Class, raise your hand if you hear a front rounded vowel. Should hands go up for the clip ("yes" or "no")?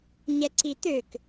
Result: yes